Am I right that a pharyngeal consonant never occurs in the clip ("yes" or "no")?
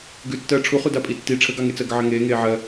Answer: no